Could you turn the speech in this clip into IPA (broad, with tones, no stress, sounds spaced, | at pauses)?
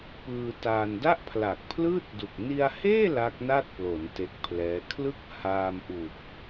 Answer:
p ɯː˧ t aː˧ n d a˥˩ ʔ pʰ l aː˨˩ k̚ pʰ l ɯː˥˩ t̚ d u˨˩ k̚ n i˧ a̯ h eː˥˩ l a˦˥ k̚ n a˥˩ t̚ p l o˩˦ n t e˦˥ k̚ pʰ l ɛː˦˥ kʰ l ɯ˥˩ k̚ h aː˧ m ʔ u˨˩ k̚